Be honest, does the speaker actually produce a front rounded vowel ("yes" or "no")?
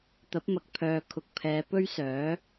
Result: yes